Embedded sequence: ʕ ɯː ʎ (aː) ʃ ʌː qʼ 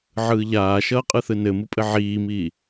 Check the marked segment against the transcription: correct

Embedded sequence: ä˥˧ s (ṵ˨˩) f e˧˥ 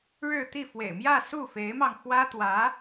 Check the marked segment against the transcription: incorrect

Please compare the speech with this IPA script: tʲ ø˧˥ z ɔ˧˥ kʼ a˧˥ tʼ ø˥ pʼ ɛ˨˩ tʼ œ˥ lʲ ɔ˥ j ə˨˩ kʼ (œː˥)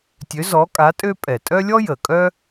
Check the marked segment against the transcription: incorrect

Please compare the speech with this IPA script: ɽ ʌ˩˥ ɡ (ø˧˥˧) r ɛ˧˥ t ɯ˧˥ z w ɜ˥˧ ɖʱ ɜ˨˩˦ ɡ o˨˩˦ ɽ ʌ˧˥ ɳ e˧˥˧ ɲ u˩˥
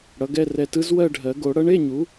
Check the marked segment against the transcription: incorrect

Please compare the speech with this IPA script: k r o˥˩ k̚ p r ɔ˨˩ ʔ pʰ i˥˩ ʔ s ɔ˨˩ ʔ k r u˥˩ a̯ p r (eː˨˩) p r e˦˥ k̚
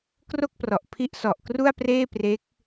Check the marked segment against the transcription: incorrect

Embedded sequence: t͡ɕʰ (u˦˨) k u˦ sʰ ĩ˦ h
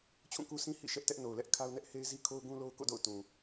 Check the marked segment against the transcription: incorrect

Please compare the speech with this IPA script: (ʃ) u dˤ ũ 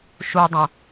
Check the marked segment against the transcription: correct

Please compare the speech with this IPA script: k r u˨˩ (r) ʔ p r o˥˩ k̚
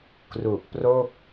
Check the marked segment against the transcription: incorrect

